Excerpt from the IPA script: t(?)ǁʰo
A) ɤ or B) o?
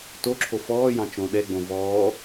B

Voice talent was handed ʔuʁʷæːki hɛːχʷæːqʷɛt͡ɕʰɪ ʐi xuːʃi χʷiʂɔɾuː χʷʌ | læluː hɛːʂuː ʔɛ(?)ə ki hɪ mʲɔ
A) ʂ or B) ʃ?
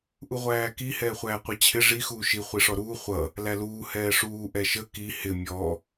B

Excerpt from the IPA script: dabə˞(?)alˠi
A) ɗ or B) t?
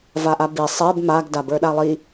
A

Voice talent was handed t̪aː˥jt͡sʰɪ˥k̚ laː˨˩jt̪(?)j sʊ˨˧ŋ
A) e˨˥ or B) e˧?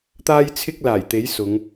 A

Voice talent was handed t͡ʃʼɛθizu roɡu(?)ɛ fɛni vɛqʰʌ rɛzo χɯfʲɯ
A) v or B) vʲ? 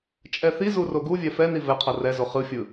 B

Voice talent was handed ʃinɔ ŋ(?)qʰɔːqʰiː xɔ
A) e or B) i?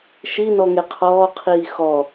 A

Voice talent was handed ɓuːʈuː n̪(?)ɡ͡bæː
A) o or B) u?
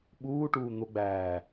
A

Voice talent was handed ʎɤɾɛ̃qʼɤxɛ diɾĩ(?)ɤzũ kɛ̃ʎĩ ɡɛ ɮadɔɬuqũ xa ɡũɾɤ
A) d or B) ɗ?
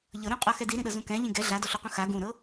B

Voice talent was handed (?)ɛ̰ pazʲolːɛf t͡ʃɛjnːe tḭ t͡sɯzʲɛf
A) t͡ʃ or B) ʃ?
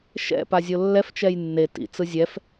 B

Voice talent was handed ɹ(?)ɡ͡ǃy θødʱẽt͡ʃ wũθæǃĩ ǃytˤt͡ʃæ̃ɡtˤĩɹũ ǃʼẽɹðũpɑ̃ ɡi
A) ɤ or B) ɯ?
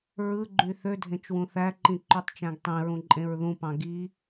B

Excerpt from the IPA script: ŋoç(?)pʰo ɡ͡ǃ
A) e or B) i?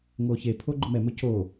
A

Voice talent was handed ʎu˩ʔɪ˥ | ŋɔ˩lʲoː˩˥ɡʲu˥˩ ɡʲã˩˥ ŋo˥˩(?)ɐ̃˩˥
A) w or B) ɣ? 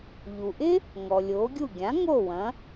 A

